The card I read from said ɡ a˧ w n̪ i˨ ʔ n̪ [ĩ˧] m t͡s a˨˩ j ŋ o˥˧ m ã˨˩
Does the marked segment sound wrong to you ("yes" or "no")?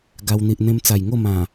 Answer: yes